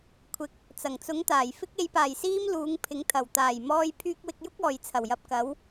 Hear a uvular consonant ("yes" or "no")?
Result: no